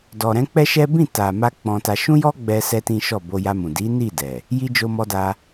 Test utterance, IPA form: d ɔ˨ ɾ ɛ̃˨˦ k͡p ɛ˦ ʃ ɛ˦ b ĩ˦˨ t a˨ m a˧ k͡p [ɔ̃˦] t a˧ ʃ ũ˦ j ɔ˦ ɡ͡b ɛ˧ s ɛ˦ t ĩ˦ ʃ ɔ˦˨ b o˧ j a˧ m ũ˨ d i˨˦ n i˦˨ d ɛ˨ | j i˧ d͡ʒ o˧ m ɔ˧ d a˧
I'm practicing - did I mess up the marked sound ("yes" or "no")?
yes